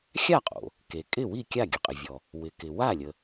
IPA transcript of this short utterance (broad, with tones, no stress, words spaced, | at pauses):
xʲa˥˩qʼo̰˩ | ke˩kʼɪ˥˩wi˥˩ kʲa˥˩ɡʲə˩qʼɪ˩vʲɔ˩ | wɪ˩ kɪ˩ wa˥˩lʲə˩